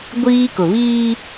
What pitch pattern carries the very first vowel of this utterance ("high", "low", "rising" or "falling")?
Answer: high